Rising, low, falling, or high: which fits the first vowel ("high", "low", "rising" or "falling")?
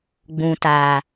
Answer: low